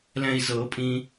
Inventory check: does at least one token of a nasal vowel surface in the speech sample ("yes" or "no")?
yes